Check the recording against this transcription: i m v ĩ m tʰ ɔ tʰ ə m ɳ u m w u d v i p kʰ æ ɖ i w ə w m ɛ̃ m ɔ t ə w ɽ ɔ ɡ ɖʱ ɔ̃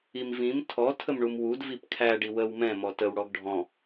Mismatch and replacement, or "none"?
none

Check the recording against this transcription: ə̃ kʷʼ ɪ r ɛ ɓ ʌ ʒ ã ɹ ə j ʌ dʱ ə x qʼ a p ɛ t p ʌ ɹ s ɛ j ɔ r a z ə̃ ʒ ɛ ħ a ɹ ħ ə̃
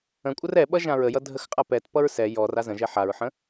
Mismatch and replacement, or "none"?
ɪ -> ə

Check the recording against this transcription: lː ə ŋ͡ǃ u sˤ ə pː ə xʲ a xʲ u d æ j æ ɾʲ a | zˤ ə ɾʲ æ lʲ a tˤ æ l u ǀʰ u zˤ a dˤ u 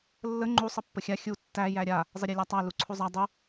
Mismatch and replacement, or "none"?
d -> tː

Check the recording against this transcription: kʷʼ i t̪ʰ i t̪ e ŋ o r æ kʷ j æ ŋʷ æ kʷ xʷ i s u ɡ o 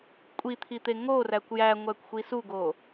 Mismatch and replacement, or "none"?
none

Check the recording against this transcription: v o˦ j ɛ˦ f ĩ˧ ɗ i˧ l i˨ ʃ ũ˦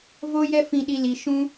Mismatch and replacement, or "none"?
none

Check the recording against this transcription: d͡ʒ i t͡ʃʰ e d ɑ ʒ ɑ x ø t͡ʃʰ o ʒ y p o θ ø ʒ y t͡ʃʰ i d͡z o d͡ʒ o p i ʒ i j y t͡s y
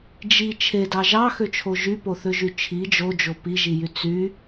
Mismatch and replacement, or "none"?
d͡z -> d͡ʒ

